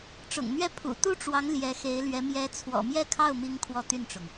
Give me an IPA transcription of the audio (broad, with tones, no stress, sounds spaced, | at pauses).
ʈ͡ʂ ʊ̰˨˩ ŋ n̪ ɥ ɛ˥˩ pʰ ṵ˨˩ t̪ u˥ ʈ͡ʂ w ɑ˧˥ ŋ l j ɛ˧˥ x e˧˥ ɪ̯ l ɥ ɛ˧˥ m j ɛ˧˥ t͡sʰ w ɔ̰˨˩ m j ɛ˥˧ kʰ ɑ˥˩ ʊ̯ m i˥ ŋ kʰ w ɔ˥ t̪ y˥˩ n ʈ͡ʂ ʊ˩ ŋ